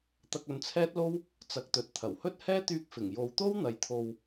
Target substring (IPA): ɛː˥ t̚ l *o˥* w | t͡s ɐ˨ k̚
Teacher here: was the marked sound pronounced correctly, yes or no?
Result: yes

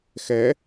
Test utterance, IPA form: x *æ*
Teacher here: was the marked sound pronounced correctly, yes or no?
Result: no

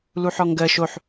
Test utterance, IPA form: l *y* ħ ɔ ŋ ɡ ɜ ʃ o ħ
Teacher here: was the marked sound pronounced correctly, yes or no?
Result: no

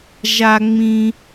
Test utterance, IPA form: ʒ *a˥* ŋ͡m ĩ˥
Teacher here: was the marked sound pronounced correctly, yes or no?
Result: yes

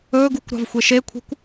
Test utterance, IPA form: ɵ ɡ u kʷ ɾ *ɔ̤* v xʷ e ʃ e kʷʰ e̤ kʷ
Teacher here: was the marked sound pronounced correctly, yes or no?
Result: no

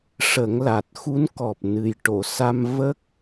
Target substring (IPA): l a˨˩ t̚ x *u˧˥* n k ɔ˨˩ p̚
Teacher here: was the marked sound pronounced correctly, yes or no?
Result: yes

